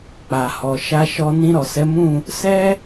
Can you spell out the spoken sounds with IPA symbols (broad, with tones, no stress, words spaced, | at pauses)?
k͡pa˨hɔ˨ ʃa˧ʃɔ˧ nĩ˧ɾɔ˨sɛ˨˦mũ˦˨ | sɛ˦